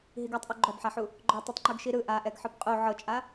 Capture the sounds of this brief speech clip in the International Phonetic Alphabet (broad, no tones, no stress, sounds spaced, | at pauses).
ɦ i ɡ ɔ tˤ ʔ u ɡ͡ǃ ɔ b ħ a ħ u | ɡ͡ǃ ɔ tˤ o tˤ ŋ͡ǃ u ɡ ʃ i ɾ ɯ ʔ a ʔ ɛ ɡ ħ ɯ b qʼ u ʕ ɤ t͡ʃʼ a